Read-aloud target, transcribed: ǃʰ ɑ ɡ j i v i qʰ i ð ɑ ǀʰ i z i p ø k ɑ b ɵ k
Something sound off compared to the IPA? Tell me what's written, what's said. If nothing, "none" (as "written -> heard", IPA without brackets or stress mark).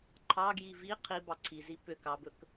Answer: ð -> b